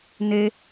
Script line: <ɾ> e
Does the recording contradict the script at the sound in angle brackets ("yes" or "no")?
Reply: yes